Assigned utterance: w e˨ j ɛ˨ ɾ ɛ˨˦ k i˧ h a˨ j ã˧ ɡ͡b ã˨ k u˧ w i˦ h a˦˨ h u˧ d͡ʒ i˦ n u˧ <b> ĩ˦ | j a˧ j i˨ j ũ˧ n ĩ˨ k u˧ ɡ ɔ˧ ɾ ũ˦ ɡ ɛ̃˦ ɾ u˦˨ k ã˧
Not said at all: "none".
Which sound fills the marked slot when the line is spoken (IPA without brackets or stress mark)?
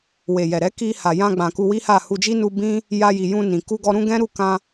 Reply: b